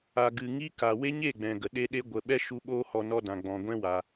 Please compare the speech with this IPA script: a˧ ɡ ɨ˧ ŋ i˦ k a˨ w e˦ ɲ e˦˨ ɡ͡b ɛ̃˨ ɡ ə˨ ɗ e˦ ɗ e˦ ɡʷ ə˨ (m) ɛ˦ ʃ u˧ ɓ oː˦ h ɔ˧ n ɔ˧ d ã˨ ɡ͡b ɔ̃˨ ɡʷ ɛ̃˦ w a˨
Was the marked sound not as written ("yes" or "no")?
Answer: yes